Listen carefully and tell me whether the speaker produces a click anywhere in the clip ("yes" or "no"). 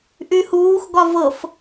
no